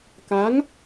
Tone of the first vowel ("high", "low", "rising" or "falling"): rising